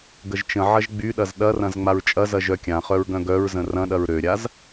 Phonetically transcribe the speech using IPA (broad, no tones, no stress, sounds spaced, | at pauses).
ɡ ə ʒ t͡ʃ ə̃ ʕ ɐ ʒ ɡ͡b y ɗ ɐ z ɗ ɐ r ɐ̃ z ŋ͡m a ɹ t͡ʃʼ ɐ z ɐ ʒ œ kʲ ã χ œ ɹ ɡ œ̃ ɡ œ ɹ z ə̃ r ɐ̃ ɗ ɐ ɹ ɾ ø ɾʲ a z